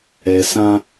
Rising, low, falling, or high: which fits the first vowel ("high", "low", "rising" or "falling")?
low